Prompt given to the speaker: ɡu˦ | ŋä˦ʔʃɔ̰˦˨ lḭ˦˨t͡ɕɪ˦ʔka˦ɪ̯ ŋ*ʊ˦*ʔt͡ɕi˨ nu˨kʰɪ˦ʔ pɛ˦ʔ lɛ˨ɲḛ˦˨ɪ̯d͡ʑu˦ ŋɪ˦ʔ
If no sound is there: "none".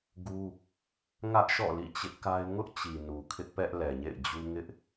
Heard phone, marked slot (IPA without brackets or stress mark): ʊ˦